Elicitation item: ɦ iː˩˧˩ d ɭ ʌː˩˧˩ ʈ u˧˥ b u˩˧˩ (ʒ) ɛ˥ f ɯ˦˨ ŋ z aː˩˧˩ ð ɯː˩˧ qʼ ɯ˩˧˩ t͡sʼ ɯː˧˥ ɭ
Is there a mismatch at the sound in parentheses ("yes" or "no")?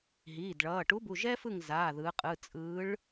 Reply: no